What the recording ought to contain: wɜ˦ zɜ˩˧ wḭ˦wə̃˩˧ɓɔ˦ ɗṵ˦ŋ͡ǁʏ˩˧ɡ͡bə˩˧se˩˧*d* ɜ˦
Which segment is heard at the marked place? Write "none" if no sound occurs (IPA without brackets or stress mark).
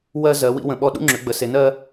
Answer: n